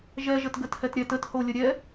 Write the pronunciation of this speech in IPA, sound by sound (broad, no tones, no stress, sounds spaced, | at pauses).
ʒ ɛ ʒ ə t ɡ ə t h ɛ t ɾʲ ɛ t ə t h o lʲ ə ɾʲ ɛ